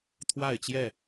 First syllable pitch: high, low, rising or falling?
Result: falling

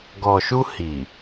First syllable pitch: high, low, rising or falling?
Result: low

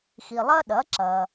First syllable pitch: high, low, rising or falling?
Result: low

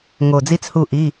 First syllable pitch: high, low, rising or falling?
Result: low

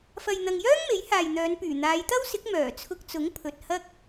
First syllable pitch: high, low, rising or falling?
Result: low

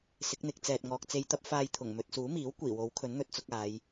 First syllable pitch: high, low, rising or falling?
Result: rising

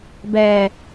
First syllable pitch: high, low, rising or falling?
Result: low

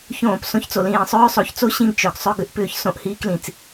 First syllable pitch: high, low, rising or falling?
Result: falling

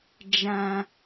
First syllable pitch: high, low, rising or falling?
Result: low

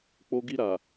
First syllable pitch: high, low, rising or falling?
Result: high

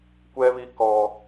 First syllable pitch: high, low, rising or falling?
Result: high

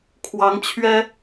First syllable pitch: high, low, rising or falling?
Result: rising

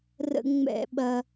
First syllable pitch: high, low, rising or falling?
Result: high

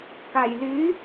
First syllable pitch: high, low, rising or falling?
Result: low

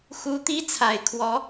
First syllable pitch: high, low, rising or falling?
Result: high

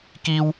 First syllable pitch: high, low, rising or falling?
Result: high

